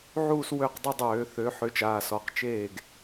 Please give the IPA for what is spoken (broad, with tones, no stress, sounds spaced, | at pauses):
ʕ uː˥˧ s w ø˥˩ q dˤ ʏ˥˧ dˤ øː˧˩˧ θ ø˨˥ ħ ʏː˨˥ t͡ʃ aː˩˧˩ s ɔ˩˧˩ q t͡ʃ eː˥˩ ɡ